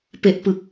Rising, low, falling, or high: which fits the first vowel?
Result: low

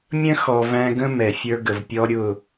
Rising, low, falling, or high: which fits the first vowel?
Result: high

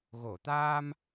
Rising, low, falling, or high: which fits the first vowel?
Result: low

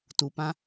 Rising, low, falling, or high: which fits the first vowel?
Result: low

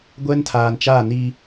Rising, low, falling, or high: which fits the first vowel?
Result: high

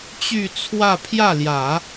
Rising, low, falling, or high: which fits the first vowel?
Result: falling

